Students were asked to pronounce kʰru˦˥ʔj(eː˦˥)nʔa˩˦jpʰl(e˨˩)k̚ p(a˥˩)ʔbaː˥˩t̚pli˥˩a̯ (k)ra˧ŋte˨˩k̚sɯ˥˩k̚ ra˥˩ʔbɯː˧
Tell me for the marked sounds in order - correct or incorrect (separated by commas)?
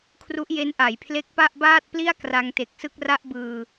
incorrect, incorrect, correct, correct